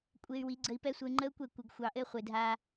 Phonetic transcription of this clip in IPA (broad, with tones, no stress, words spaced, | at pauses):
kʷʼe˧y̯ wi˨˦ɡ͡ǀə˧i̯pɛ˦sʷə˧y̯ ŋ͡ǃə˦u̯kʷɛ˦˨kʷɘ˨ɡ xʷɑ˨ʔɘ˧ χʷe˨ dʱa˧